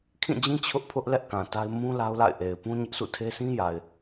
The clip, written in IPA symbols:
kʰĩ˦˨d͡ʑĩ˦ t͡ɕʰʊ˦ʔpʰʊ˦ʔ lɛ˦ʔkã˨ ta˦ɪ̯ mũ˦ la˦ʊ̯la̰˦˨ɪ̯ʔe˨ɪ̯ pũ˦ ɲɪ˦ʔsṵ˦˨tʰe˦ sĩ˦ja˨ɪ̯

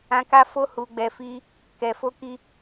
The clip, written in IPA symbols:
ã˧ka˦fo˦ hu˧ɡ͡bɛ˧fi˦ | kɛ˨ fo˧ki˧

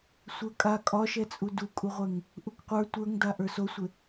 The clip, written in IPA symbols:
sʷə˞kʼa kʼɒʃɛt͡sʼu dukʼuʁʷɛŋ | ʔukqʷə˞ tʷə˞ŋda ʔə˞sosʷɪ

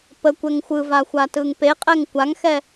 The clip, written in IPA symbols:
pəkʷɛŋ xʷɯva xʷatɯŋpeqʼɛŋ kʷaŋxɛ

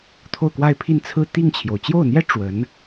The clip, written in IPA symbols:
t̪ʰo˥˧ʊ̯kwa˥˧ɪ̯pʰi˥˧n t͡sʰɹ̩˥˧t̪i˥˩ŋt͡ɕʰjo˩ʊ̯ t͡ɕjo˥˩ʊ̯n̪jɛ˥ ʈ͡ʂwə˧˥n

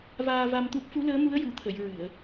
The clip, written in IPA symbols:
vaː˧va˧mt̪u˦˥p̚ fu˧˥ləː˧˥mu˧˥ə̯ ju˨˩˨t̪ʰə˨˩˨j ɹɨ˨˩˨ə̯

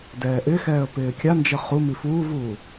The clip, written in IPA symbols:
dɛːʔɪxɛːə̯ pɪːkʲand͡ʒə χumi fuːvuː

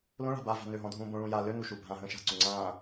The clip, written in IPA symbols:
lõɭa̤ bava̤ nøɦɔ̃ dʱũːbõɭũː ja lø nuʃubʱãɦə̃ː ʃa̤ǀu ŋ͡ǀãː

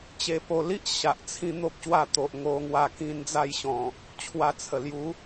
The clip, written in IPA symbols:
t͡ɕe˧po˧li˦ʔ ɕa˨ʔ t͡sʰĩ˦n̪o˦p̚ɕwa˥˧ t̪o˨ʔŋo˧ŋwa˧kĩ˧n d͡za˥˧jɕɔ̃˨˩ | t͡ɕʰwa˧t͡sʰə˨˩ lju˨˦

